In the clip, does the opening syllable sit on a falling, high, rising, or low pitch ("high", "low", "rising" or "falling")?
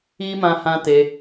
high